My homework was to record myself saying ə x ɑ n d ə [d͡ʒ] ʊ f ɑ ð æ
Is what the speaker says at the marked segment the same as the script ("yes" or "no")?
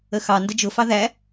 yes